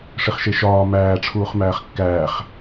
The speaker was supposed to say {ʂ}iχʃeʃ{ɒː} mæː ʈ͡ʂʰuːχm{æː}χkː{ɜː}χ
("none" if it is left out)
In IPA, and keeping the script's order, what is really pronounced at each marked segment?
ʂ, ɒː, æː, æː

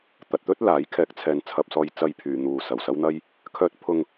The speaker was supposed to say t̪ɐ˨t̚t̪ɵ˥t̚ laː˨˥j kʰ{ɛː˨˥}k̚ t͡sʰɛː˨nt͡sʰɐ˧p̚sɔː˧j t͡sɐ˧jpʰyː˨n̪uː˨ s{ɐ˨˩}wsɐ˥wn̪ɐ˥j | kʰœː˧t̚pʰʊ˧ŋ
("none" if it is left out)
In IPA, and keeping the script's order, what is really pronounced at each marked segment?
ɛː˨˥, ɐ˨˩

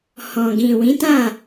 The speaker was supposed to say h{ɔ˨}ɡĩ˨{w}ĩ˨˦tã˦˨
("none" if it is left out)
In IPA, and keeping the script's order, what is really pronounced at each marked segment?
ɔ̃˨, w

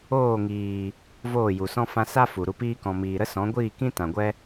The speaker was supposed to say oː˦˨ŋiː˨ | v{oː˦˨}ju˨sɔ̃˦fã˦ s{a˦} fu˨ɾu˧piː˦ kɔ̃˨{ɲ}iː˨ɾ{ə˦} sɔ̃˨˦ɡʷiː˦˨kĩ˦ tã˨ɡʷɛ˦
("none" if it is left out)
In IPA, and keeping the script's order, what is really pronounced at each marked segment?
oː˦˨, a˦, m, ə˦

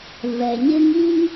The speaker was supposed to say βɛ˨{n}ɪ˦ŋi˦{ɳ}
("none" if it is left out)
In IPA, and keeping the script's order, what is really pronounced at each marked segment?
ɲ, ŋ

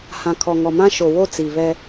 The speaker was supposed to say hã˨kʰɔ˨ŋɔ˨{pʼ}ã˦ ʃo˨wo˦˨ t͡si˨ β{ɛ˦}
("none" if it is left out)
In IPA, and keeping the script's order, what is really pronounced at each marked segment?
m, ɛ˦

